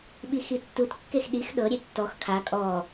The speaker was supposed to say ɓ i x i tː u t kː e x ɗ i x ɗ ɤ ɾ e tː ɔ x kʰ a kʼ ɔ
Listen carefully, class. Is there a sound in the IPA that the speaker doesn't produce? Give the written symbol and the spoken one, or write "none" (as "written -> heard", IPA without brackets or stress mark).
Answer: ɾ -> ɾʲ